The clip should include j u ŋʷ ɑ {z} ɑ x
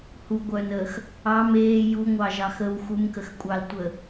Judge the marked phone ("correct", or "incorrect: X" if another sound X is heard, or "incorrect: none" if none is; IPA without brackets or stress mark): incorrect: ʒ